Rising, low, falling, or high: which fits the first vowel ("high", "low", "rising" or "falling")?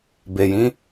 low